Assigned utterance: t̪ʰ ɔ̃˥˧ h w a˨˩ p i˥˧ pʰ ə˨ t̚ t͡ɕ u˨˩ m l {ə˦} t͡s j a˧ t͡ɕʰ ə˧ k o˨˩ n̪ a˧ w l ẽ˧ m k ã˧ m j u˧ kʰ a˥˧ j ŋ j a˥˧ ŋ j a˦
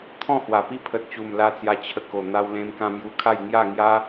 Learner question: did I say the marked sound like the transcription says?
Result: no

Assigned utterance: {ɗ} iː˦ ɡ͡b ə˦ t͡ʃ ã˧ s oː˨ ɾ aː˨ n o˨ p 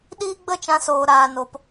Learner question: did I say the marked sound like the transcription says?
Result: yes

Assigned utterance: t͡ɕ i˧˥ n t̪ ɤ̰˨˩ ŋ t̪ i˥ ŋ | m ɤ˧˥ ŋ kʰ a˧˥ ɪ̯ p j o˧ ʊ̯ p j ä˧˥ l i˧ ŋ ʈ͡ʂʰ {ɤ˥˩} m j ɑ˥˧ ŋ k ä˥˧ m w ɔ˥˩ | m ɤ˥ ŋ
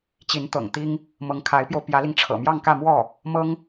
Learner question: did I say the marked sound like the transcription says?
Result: no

